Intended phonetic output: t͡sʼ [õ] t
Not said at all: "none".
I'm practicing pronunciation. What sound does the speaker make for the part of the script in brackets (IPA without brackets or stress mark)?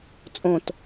õ